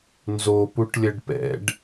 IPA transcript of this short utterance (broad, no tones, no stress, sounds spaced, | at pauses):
n z o p u ʈ lʲ ə ɖ p ɛ̰ ɖ